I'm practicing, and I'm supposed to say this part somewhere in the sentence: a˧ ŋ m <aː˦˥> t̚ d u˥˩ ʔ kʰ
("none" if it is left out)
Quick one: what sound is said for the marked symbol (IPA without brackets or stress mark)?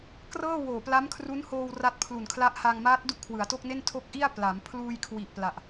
aː˦˥